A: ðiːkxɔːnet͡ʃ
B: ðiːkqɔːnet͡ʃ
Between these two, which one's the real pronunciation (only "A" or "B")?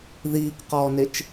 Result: B